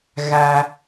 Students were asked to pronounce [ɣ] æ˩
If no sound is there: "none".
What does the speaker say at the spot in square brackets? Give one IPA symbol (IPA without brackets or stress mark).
ɣ